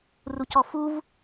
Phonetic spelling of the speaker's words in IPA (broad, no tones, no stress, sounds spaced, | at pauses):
r u c ɔ f u v